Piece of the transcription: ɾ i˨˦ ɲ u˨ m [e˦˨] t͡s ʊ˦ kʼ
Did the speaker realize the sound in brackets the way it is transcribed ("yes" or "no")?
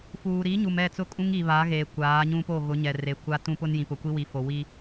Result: no